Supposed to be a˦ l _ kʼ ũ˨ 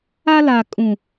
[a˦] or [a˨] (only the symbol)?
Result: a˨